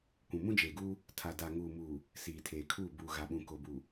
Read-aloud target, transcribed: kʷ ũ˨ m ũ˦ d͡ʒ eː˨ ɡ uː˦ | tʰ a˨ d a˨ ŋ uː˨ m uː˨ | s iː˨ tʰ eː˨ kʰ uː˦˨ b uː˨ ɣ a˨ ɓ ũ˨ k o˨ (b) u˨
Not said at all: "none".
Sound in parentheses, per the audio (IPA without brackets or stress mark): b